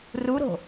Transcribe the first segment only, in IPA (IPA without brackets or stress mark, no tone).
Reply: r